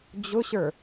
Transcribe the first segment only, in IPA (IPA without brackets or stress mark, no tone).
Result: d͡ʑ